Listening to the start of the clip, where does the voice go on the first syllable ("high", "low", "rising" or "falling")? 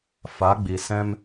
rising